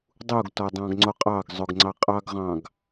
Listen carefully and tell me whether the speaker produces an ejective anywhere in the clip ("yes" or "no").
yes